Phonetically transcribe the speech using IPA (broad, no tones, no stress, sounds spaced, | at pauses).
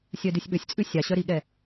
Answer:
sʲ œ d ʉ sʲ ɓ ɵ sʲ t͡sʼ ʉ sʲ ɑ ɕ œ ɾ i ɠ ɛ